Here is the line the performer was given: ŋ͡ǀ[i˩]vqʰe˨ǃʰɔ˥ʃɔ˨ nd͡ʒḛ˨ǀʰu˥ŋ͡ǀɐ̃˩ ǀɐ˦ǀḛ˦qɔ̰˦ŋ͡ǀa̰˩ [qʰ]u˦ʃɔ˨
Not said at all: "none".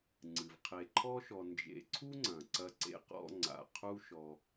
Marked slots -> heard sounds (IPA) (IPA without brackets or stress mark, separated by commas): ɨ˩, qʰ